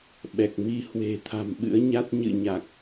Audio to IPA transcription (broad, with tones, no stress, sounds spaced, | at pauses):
ɓ ɛ˨˩ k̚ m i˧ h w e̤˨˩ t̪ʰ a̤˨˩ m ɓ ɨ̰˧˥ ə̯ ɲ a˦˥ t̚ ɲ ɨ̰˧˨ ɲ a˨˩ k̚